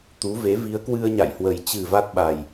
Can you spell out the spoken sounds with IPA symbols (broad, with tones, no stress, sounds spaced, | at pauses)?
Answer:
t̪ u˨˦ v e˨˦ v i˨˦ ə̯ k w ɨ˧ ə̯ ɲ a̰˧˨ j h w ə˨˩ j t͡ɕ ɨ˨˩ v a˦˥ t̚ ɓ a˨˩ j